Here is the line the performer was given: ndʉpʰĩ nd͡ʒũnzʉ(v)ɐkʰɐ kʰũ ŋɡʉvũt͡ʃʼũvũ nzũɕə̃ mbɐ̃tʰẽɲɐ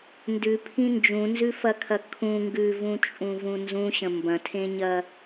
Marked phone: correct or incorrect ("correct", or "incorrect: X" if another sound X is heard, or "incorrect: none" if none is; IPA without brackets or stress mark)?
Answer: incorrect: f